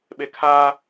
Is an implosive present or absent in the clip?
present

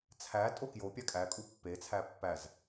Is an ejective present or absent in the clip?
present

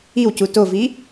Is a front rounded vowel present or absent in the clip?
absent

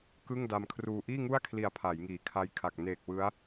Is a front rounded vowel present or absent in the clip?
absent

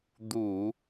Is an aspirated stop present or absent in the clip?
absent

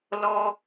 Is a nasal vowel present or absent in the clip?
absent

